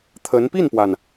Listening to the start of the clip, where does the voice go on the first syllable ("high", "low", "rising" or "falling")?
rising